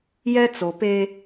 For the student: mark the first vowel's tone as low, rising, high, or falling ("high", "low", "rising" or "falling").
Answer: high